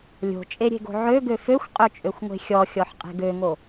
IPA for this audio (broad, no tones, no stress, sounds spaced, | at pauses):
lʲ o̤ t͡ʃʼ e ɾʲ e̤ ɡ o̤ ʕ ø ɡ ø f ø xʷ qʼ ø t͡ʃʼ ø xʷ ŋʷ e̤ xʲ ɔ xʲ ɔ ħ qʼ e̤ ɡ ø ŋ o